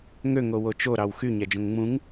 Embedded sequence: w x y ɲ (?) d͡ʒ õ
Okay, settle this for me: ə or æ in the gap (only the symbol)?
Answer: æ